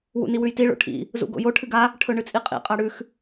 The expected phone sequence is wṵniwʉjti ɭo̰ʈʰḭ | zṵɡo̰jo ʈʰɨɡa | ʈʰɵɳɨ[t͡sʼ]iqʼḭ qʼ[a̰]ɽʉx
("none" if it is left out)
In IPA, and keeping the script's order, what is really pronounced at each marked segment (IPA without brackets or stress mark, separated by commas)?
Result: t͡sʼ, a